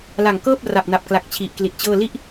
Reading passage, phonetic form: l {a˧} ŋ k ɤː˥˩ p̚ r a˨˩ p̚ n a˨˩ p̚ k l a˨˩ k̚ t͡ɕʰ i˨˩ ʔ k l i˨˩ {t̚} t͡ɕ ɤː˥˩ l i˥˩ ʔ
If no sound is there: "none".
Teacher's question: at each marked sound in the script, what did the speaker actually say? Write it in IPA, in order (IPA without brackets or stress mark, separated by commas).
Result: a˨˩, t̚